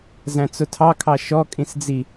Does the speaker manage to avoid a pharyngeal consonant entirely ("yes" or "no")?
yes